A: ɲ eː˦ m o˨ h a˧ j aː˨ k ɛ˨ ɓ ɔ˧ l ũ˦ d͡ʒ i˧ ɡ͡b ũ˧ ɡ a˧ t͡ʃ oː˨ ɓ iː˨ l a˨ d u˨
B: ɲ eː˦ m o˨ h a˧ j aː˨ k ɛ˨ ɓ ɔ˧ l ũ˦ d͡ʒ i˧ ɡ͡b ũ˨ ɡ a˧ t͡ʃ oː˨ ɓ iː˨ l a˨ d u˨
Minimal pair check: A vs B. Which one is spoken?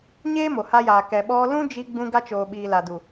A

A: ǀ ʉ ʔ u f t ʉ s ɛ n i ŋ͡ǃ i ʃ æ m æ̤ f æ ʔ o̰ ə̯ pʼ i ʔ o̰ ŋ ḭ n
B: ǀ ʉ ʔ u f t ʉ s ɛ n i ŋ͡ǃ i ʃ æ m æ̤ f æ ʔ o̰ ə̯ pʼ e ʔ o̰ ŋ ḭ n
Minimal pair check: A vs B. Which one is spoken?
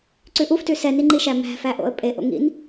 B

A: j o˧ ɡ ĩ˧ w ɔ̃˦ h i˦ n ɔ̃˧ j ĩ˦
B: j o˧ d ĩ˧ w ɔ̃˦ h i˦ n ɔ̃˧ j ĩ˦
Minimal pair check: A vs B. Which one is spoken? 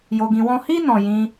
A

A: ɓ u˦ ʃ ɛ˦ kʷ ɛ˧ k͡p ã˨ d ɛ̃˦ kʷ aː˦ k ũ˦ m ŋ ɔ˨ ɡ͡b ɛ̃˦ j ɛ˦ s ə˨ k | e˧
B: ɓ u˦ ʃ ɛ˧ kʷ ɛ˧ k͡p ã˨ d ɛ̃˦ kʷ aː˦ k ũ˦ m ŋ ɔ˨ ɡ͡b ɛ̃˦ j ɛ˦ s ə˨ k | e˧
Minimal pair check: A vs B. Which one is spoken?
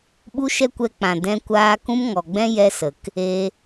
A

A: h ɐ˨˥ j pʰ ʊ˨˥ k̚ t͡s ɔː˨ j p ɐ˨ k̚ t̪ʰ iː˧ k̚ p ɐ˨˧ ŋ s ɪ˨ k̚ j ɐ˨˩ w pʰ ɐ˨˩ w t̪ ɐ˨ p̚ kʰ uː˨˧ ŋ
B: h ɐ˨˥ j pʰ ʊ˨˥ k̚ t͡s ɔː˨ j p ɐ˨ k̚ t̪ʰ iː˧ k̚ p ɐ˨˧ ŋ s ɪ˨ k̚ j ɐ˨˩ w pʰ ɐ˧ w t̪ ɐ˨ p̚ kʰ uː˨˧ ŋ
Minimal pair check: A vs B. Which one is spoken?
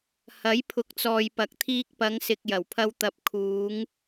B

